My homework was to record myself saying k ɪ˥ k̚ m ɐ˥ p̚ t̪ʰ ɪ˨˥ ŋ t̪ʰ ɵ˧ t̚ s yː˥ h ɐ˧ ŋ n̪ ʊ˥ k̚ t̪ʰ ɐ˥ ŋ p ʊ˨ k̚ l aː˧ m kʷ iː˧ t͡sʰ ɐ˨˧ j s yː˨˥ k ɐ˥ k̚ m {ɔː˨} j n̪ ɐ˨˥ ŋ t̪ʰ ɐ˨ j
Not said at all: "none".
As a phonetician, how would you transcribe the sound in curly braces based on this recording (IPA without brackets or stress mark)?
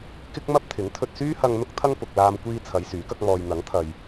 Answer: ɔː˧